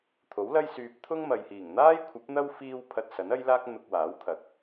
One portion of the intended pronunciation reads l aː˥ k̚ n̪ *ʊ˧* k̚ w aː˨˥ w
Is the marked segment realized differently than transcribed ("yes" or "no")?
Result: no